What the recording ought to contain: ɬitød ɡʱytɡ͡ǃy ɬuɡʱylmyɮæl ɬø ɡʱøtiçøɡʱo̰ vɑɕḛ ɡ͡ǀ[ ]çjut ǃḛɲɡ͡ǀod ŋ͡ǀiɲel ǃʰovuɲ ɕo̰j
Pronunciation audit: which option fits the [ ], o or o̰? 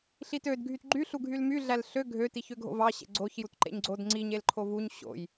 o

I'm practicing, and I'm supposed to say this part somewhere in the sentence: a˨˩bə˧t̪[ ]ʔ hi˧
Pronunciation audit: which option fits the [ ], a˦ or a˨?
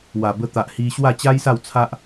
a˨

